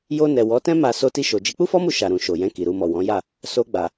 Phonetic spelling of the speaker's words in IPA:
j o˧ n ɛ˨ w ɔ˨˦ t ɛ̃˦ m a˧ s o˧ t i˧ ʃ o˨ d͡ʒ i˨˦ k͡p u˦ f ɔ˦ m u˧ ʃ a˨ ɾ ũ˨ ʃ o˨ j ɛ̃˧ k i˨ ɾ u˧ m ɔ˨ w ɔ̃˨˦ j a˦˨ | s o˧ ɡ͡b a˨

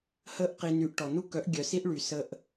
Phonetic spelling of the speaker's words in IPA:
h ə˦ ʔ q i˧ n y˧ ʔ ʈ ɔ˨ n u˦ k œ˨˦ ʔ ɡʲ œ˨ s i˦ ʔ ɭ y˨ s ə˧ ʔ

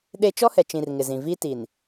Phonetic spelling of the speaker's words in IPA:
ɗ e˦ t͡ʃ ɔ˦ h ɛ˨ t͡ʃ ĩ˨ r ŋ ɪ˨ z ĩ˨ v i˦ t i˨ n

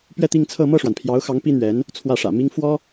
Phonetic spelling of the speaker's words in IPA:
p ɥ ɛ˥˧ t̪ i˥˧ ŋ t͡sʰ ɤ˥˧ m ɤ˥˩ ʂ w a˩ n pʰ j ɑ˧˥ ʊ̯ x ɑ˧˥ ŋ p i˥ n̪ ɥ ɛ˧˥ n | t͡sʰ w ä˥˩ ʂ ä̰˨˩ m i˥ ŋ f w ɔ˥

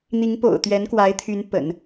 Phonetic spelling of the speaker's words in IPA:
n̪ i˧˥ ŋ p o̰˨˩ ʊ̯ t̪ ɥ ɛ˧˥ n k w a˧˥ ɪ̯ t̪ʰ y˧˥ n p ə̰˨˩˦ n

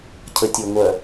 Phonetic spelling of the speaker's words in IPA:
cʰ ə tʲ o ŋʷ œ

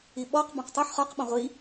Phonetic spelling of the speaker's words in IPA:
i ɓ ɔ q b ɔ̃ q tˤ u ħ χ ɒ q ɓ ɔ̃ ʁʷ i

